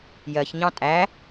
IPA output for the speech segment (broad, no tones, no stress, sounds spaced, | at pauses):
j ɜ ç ɲ ɑ̃ tʼ æ